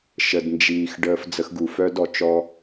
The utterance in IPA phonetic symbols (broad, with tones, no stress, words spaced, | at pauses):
ʃə˨dnd͡ʒiː˨x ɖəː˦fd͡zə˦xɡu˨ fœ˦d ɔ˨t͡ʃɔ˦